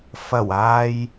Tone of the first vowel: low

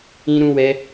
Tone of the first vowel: high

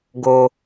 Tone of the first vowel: high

